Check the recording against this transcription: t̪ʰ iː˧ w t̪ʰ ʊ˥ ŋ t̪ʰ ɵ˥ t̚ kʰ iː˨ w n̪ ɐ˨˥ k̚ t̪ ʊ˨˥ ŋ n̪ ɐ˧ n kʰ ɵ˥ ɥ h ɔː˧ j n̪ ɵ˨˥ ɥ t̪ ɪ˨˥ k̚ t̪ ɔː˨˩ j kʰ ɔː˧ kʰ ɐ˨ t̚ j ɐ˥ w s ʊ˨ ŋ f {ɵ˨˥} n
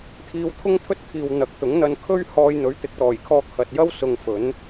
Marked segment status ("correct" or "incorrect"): correct